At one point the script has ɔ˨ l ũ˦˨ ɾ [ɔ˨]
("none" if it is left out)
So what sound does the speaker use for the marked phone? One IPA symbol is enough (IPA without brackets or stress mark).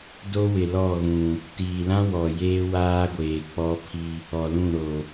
o˨